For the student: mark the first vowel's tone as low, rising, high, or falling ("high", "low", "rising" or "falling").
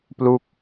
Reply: falling